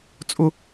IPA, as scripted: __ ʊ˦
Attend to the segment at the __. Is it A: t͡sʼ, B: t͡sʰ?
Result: A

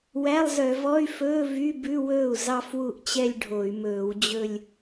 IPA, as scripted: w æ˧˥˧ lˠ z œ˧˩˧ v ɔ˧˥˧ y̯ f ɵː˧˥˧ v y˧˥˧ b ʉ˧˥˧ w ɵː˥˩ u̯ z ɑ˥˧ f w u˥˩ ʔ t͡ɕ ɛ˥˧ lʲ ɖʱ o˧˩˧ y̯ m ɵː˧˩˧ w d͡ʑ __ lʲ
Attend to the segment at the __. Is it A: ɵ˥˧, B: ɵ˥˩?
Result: A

